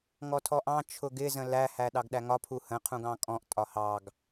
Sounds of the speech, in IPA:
ŋɔtʰɔʔɑ̃ t͡ʃʰʊɡɪ zə̃læ hæɗɑɡɗæŋɒ pʰuhə̃ qʰũɡɑ̃kʼɔ̃ʔ tʼɒhɑɡ

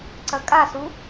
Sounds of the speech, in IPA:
ǀɐkʼasu

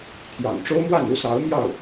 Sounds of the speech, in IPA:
t̪ʰjɑ̰˨˩ŋʈ͡ʂo˥ʊ̯mwa˥˩n u˥sɑ˧˥ʊ̯mjɑ˥˩ʊ̯

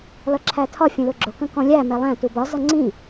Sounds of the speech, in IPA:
lʌǁʰætʰɒ fʲə̃lʊɡ͡ǁʊ kə̃kɔ̃lʲæ mɛlˠæ̃ tubɒ zʌŋ͡ǀĩ

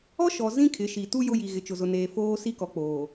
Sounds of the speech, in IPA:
ɔ˦ʃɔ˨ zĩ˦kʰɪ˨˦ ʃi˨tu˦ jʊ˦ji˨ ɣɪ˨t͡ʃʊ˨ zʊ˨neː˨ foː˦si˦kɔ˨k͡poː˨

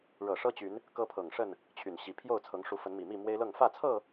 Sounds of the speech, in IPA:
ɻɤ˨˩ʂɤ˦t͡ɕy˨˦n | kɤ˦pʰɤ˨˩ŋʂə˥˨n | t͡ɕʰy˨˩nɕi˨˦ pʰjo˥˨ʊ̯t͡sʰɤ˨˦ŋʂu˨˦fə˨˦n mi˨˩mi˥˨mwe˦ɪ̯lɤ˥˨ŋ fä˥˨t͡sʰɤ˥˨

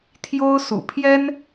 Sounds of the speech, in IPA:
t̪ʰjo˥ʊ̯sṵ˨˩ pʰjɛ˥n

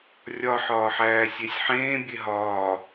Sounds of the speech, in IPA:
rʲɒ ħɒːħæːsʲesʲ ħẽː bʲeɦɒː

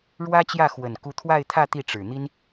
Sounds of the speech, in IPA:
ɻwä˥t͡ɕjä˥˩ xwə˨˩n ku˧˥t̪ʰwa˥˧ɪ̯t̪ʰä˥˧ t̪i˥˩ʈ͡ʂɻ̩˨˩ n̪i˥n

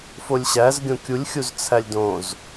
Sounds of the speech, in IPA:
folʲɕæz ɡʲõkʲulʲxʲuz t͡sʰælʲdõz

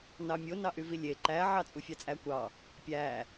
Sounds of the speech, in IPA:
nɑmʲo nɑʔyvilʲe ǃæ ʕɑt͡sʼufʲɑt͡sʼæ kʷɑ | pʲæ

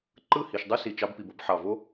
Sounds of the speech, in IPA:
ǃɯ˦˨ hi˨ʃdˤɯ˦si˨ t͡ʃɑ˧bpi˨bo˦b ħɑ˨vo˦

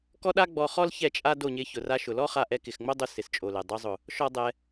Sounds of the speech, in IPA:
kɔ˦ɗa˦ ɡ͡bɔ˧χɔ˦l çɛ˦˨ t͡ʃʼa˦do˦˨ɲɪ˧ çʊ˨ra˧ʃʊ˨lɔ˦ χa˧ʔɛ˧ kɪ˨xŋ͡mo˦dˤʊ˧ sɪ˨st͡ʃʼo˨lɛ˨ dˤo˧zˤʊ˨ | ʃɔ˦dˤɛ˧

